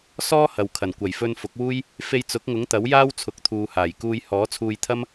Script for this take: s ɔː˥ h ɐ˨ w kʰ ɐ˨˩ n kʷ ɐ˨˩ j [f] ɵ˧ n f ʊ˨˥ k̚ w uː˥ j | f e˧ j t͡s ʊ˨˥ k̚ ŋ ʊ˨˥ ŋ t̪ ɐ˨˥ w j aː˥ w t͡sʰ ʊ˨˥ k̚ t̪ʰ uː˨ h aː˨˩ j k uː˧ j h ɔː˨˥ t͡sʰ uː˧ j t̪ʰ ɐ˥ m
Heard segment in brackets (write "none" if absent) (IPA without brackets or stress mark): f